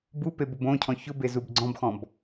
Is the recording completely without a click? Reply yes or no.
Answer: no